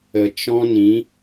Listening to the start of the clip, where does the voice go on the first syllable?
low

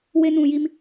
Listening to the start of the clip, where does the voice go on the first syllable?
high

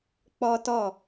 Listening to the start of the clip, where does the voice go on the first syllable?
high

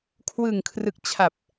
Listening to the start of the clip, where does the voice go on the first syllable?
low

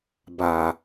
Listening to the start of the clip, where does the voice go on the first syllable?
low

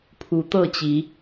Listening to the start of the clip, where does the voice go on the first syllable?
rising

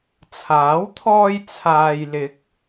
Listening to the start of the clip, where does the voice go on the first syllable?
rising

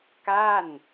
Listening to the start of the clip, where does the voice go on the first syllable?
falling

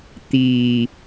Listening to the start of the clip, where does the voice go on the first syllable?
low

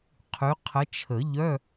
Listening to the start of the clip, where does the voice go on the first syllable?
rising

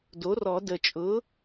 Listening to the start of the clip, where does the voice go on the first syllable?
rising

